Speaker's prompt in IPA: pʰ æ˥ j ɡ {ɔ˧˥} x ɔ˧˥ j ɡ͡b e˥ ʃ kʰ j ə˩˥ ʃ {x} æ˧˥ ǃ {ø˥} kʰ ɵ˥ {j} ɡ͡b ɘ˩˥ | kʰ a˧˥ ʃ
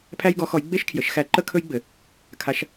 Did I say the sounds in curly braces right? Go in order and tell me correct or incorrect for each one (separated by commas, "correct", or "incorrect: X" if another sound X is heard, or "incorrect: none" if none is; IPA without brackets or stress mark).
correct, correct, incorrect: ə˥, correct